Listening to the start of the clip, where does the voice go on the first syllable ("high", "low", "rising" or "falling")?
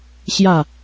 falling